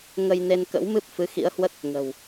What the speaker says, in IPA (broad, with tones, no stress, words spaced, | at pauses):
ŋə˧jne˧nkə̰˧˥wmɨ˦˥p̚ fɨ˨˦xḭ˧˥ə̯hwə˦˥t̚ | ŋə̤˨˩w